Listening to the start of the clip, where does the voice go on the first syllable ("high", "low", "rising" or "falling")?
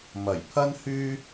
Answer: low